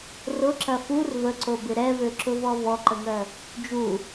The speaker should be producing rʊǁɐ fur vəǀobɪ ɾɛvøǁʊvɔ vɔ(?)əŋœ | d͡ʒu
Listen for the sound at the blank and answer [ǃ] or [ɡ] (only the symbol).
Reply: ǃ